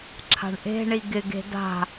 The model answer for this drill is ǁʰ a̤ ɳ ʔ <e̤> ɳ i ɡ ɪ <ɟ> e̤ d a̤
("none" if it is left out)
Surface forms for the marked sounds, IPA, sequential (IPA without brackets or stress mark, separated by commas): e̤, ɡ